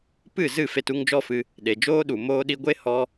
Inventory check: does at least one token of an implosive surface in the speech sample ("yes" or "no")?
yes